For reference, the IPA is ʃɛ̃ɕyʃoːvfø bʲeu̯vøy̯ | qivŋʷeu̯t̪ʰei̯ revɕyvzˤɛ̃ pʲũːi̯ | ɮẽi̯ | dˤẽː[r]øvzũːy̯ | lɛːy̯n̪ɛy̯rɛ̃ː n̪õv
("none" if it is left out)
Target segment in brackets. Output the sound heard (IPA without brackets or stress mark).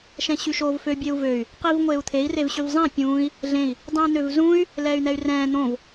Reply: n̪